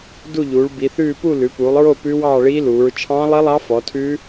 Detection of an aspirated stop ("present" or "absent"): present